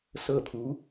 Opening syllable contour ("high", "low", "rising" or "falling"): falling